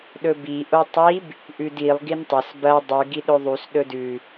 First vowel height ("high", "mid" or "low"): mid